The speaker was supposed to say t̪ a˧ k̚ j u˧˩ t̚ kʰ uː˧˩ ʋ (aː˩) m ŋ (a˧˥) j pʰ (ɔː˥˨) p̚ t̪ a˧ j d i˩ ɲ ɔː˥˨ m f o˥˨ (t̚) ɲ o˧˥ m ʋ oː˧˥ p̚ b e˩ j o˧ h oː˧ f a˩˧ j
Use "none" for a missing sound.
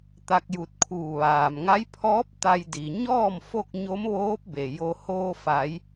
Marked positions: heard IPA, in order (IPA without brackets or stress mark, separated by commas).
aː˩, a˧˥, ɔː˧˥, k̚